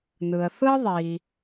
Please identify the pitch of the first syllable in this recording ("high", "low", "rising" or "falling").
low